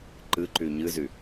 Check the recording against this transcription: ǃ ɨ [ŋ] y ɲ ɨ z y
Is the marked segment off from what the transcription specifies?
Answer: yes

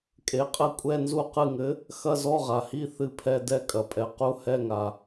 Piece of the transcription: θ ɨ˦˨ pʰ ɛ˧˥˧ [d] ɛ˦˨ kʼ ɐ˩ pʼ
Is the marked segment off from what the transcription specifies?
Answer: no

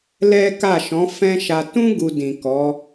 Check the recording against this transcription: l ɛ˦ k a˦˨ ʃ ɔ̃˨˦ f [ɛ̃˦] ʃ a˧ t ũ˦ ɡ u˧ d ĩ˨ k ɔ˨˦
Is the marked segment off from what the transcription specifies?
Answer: no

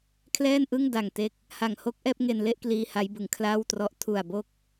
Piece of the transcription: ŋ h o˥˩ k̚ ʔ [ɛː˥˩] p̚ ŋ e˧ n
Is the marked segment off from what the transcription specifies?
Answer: no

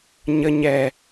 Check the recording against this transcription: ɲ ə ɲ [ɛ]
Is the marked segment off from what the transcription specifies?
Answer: no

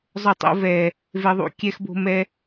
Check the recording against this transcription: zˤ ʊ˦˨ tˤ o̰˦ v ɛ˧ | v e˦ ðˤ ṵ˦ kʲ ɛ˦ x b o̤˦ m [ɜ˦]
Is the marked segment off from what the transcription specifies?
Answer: yes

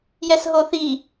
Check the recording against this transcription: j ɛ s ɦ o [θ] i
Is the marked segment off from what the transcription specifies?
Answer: no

